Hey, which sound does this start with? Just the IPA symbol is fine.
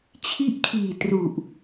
t͡ɕʰ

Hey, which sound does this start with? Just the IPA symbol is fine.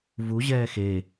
v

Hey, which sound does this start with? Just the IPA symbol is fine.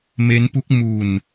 m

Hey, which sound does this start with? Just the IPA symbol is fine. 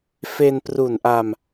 f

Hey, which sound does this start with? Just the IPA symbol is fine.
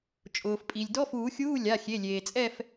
t͡ʃʼ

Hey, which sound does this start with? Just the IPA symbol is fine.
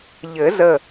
ʎ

